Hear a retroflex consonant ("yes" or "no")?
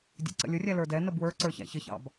no